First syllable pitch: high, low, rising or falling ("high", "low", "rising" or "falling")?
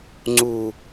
low